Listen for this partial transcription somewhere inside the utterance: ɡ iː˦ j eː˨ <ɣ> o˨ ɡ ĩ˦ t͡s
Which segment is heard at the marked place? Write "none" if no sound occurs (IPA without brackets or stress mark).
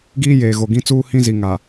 ɣ